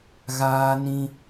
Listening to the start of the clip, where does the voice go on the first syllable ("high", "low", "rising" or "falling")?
high